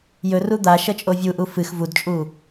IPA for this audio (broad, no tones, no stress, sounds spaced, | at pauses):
j ɵ r u d̪ a ʃ ɐ t͡ʃʼ o vʲ u ʔ u f ɨ x v u d t͡ʃʼ u